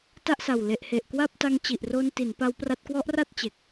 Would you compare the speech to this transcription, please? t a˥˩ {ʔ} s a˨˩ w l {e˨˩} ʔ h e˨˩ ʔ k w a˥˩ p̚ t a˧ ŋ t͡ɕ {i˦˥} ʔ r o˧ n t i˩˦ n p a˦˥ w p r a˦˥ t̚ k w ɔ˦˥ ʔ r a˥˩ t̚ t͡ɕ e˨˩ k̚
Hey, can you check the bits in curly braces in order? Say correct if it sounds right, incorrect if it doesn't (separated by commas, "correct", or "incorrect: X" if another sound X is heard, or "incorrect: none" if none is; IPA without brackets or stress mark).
correct, correct, incorrect: i˨˩